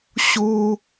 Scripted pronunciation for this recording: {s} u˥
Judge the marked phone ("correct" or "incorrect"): incorrect